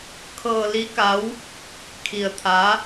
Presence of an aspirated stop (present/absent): present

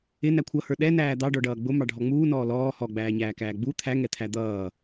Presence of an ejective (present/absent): absent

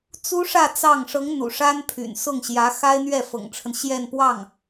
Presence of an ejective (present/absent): absent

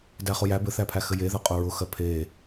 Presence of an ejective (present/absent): present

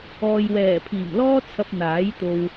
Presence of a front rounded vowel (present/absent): absent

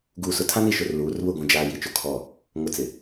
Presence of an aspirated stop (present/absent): present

